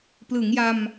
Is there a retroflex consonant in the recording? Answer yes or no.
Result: no